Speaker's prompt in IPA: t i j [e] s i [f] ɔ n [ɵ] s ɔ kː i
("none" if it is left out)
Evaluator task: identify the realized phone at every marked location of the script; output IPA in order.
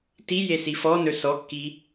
e, f, ɵ

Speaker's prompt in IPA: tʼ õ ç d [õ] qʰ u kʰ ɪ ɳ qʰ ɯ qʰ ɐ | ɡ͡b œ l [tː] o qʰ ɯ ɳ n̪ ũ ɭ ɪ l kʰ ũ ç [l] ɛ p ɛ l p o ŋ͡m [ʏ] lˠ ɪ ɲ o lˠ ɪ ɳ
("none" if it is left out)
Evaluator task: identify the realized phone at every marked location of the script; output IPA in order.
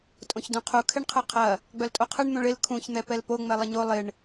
ũ, tʼ, n̪, ɛ

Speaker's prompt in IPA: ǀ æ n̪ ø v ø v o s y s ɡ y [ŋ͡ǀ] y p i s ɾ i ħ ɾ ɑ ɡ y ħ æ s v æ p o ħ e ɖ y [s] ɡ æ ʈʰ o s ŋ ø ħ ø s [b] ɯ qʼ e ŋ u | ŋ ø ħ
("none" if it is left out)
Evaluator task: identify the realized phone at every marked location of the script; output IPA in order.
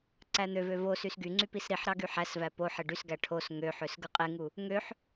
ŋ͡ǀ, s, ɡ

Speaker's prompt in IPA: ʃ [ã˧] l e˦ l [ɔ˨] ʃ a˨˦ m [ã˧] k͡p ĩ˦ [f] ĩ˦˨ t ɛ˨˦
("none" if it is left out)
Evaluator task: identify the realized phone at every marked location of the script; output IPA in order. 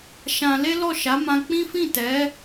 ã˧, ɔ˦˨, ã˧, f

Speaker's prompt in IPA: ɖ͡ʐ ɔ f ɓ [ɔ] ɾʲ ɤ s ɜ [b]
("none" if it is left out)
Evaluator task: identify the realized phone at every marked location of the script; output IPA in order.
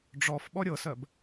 ɔ, b

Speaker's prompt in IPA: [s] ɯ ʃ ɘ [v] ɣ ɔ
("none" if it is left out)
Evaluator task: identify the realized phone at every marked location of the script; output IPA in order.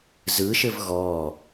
z, v

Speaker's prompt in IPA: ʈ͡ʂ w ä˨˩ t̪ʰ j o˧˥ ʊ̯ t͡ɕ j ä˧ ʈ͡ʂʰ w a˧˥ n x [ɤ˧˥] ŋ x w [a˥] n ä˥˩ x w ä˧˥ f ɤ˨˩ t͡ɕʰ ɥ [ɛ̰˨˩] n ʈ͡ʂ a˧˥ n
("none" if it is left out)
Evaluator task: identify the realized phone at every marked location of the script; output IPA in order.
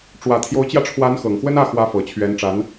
ɤ˨˩, ə˥, ɛ˧˥

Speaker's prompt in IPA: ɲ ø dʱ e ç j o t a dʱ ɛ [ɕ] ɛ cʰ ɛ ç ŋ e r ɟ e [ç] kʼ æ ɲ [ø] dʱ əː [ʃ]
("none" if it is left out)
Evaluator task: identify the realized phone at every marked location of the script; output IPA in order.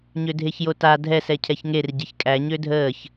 s, ç, ø, ç

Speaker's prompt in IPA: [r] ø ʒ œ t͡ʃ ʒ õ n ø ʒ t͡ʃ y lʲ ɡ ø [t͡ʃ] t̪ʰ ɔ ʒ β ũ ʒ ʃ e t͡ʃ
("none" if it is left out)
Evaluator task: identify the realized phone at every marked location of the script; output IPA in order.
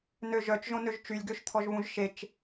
n, ʃ

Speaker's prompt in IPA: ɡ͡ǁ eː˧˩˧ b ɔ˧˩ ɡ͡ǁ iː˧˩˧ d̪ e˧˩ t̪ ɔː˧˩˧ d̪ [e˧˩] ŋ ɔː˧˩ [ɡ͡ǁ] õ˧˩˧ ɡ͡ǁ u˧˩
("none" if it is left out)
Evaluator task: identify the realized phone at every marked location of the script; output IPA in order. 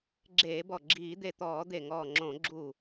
e˧˩, ŋ͡ǁ

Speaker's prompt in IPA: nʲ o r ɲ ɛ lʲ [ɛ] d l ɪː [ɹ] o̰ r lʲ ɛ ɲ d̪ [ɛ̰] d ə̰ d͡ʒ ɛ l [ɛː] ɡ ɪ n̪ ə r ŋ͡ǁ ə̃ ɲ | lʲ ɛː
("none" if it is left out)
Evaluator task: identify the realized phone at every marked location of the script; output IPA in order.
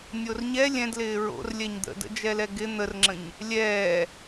ɛ̃, ɹ, ə̰, ɛ

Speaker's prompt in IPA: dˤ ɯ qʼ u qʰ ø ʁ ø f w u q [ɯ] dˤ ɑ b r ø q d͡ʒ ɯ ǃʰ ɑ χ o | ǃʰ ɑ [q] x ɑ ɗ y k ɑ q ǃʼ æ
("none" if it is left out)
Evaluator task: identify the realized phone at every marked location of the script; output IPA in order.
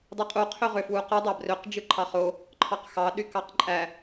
ɯ, q

